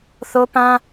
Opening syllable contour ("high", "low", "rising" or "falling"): high